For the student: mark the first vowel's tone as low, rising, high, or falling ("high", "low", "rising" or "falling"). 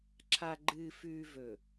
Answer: low